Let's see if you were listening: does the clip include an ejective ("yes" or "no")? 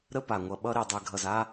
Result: no